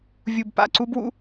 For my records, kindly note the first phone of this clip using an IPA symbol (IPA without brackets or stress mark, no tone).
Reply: vʲ